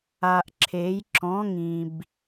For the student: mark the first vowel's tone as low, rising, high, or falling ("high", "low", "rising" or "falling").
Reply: low